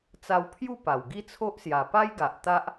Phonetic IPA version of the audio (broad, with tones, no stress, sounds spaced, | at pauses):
t͡s a˧ w pʰ j u˥˧ p a˨˩ w ɡ i˥˧ t͡sʰ o˦ ʔ s j a˨˩ p a˦ j ɡ a˨ ʔ t̪ a˦ ʔ